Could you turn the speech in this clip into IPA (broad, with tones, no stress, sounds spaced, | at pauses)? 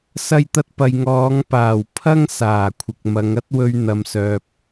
s ɐ˧ j t̪ ɐ˧ t̚ p ɐ˨ j ŋ ɔː˨˧ ŋ p aː˨˩ w pʰ ɐ˥ ŋ s aː˨˩ kʷʰ ɪ˨ k̚ m ɐ˨˧ ŋ ɐ˥ t̚ w ɵ˧ ɥ n̪ ɐ˨ m s œː˨ p̚